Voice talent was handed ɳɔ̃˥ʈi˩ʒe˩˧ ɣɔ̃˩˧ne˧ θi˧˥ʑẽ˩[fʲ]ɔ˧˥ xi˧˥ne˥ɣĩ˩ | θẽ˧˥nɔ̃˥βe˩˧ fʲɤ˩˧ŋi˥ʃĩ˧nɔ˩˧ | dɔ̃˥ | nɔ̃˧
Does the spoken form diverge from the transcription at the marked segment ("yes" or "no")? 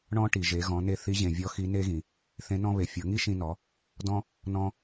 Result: yes